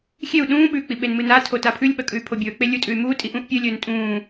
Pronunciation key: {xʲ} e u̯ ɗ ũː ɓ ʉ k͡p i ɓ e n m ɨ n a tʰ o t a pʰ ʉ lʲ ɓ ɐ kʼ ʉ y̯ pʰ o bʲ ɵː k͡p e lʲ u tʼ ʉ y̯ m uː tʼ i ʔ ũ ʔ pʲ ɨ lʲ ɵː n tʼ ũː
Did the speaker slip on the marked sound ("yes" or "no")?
no